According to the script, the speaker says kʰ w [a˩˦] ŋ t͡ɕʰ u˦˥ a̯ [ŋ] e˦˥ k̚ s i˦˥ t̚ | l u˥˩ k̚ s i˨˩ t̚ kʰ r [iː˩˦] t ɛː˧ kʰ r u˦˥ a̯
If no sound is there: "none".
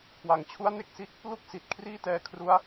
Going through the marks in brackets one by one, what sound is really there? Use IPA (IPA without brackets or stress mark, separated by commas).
a˩˦, n, iː˥˩